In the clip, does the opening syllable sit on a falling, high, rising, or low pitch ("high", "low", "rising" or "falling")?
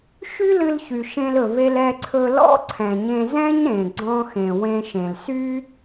high